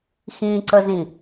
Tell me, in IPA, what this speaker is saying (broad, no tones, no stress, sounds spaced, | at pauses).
x ĩ ǀ ə z ĩ